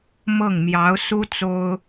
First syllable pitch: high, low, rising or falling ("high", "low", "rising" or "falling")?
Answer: falling